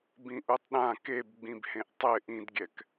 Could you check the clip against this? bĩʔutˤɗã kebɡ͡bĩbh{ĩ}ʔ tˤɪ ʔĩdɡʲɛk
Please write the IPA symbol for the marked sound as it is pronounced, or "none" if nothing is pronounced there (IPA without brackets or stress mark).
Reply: ẽ